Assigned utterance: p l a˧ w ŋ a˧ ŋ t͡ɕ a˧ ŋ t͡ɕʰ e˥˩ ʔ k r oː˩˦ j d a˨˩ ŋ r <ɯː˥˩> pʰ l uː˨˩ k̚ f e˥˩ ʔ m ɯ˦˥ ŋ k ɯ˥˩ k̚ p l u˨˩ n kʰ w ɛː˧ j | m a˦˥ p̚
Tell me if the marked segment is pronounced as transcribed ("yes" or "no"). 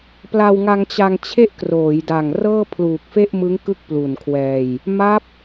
no